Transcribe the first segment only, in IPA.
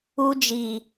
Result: u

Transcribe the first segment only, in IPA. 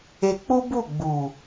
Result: e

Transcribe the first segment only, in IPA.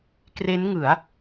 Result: k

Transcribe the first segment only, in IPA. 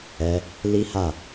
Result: ɛ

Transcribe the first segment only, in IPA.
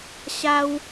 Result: ɕ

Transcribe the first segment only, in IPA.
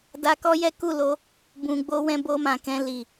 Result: d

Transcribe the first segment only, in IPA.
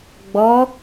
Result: ɡ͡b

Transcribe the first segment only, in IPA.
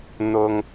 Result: n̪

